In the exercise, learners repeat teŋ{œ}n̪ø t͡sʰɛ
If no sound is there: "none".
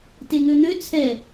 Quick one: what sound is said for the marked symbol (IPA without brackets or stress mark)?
ø